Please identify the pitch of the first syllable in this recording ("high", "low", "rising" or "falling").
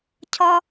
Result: high